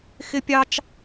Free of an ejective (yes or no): yes